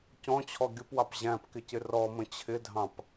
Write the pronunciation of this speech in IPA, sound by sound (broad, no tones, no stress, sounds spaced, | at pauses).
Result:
c ɔ̃ t͡ɕʰ ɔ ɡʲ ʊ p w ɑ p ʑ æ̃ p k ɪ c ɪ r ɔ m ə̃ t͡ɕʰ ɪ dʱ ɑ̃ p